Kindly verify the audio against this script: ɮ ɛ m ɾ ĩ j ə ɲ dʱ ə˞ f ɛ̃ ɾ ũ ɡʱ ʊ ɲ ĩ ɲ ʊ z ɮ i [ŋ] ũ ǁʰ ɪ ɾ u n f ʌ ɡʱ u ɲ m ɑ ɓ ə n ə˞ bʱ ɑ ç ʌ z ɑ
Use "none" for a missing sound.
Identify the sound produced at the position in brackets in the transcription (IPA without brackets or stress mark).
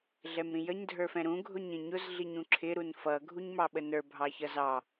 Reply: ɲ